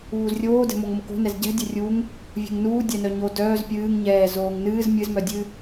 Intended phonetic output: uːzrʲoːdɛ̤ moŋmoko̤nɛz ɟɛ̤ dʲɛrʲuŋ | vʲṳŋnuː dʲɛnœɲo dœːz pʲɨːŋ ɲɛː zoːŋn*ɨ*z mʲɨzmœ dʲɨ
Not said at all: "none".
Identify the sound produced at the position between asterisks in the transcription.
ɨː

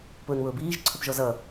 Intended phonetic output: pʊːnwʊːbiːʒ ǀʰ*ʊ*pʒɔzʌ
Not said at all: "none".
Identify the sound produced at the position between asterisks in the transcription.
ʊ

